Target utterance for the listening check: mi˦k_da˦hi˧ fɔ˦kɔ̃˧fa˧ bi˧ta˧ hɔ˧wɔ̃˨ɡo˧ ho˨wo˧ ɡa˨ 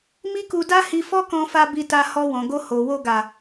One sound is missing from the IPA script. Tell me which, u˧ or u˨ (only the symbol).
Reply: u˧